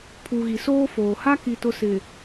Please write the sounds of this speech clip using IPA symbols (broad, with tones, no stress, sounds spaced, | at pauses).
pʰ u˨ ɣ i˨ s oː˦ f oː˨ h a˦ k i˨ t ʊ˦ s ɪ˨